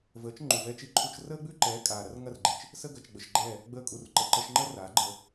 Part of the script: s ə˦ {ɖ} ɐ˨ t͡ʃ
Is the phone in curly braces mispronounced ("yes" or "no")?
yes